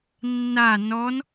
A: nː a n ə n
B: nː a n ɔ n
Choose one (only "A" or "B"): B